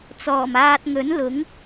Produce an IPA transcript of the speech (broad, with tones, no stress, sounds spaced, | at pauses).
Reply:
t͡s ɔː˨˩ m aː˧ t̚ ŋ ɵ˨˥ n l ʊ˨˥ ŋ